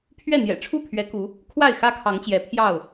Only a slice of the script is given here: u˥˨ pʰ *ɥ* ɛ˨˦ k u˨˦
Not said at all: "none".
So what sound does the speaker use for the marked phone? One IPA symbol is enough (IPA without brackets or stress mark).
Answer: ɥ